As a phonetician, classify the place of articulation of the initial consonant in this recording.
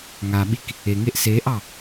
velar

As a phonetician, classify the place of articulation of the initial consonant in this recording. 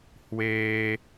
glottal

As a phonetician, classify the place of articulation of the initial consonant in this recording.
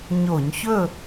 palatal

